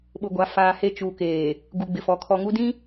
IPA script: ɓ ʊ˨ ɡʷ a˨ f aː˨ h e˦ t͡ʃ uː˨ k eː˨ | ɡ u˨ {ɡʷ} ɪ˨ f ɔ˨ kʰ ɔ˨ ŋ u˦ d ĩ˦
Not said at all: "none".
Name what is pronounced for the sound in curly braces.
ɡ͡b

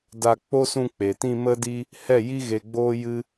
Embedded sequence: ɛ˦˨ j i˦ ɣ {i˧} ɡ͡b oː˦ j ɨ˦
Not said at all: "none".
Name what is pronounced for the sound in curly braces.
e˧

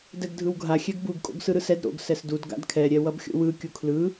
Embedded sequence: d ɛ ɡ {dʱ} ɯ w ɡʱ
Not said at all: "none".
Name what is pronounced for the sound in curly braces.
dʱ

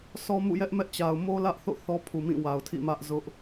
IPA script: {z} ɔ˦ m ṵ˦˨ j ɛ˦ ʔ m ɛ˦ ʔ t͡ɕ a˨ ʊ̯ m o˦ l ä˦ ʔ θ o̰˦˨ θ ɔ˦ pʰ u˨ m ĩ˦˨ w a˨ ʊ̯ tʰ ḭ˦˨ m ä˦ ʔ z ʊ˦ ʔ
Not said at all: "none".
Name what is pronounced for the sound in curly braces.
s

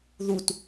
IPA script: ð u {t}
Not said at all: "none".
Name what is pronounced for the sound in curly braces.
t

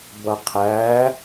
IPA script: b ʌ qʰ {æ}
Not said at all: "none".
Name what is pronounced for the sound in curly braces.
æ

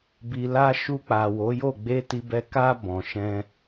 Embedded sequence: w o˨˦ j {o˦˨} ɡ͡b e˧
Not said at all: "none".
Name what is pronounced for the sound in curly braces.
o˦˨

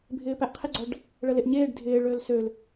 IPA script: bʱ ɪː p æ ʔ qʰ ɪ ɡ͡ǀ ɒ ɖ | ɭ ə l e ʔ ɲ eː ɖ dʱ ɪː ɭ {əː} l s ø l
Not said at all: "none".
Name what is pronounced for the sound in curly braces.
øː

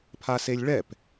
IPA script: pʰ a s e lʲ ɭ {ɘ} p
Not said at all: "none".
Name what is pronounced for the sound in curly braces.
ɛ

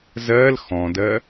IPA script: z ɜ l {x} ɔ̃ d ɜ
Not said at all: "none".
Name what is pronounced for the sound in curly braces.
x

